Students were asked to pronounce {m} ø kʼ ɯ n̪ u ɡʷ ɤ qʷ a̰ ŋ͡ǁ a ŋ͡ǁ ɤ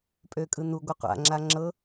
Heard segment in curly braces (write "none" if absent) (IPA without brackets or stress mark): pʼ